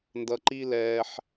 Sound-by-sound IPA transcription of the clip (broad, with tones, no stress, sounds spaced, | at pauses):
n d ʌ˧ ǃ i˦ l ɛː˧ ħ